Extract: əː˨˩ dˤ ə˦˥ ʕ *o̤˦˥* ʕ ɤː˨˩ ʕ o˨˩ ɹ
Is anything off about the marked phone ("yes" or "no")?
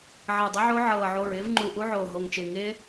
yes